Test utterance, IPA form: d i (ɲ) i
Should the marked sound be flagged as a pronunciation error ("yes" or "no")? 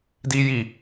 yes